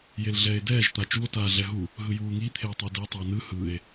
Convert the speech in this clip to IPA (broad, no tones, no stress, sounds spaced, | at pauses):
j e l ɮ ɛː e̯ d ɛː ʒ t̪ a t͡ʃ u o̯ t aː ɮ ɛ ɦ u | ɦ ɯ j uː ŋ i t̪ʰ e o̯ tˤ i d e tˤ a n ɯ h ɯ e̯